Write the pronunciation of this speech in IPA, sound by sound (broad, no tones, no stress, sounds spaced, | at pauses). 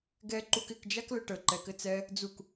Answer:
ɡ ɛ ǃ u k ɪ k d͡ʒ a k l ə ʈ ə ǃ ɛ k ɘ t͡s ɛ | d͡z u k